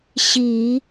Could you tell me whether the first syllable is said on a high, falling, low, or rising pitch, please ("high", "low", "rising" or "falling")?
low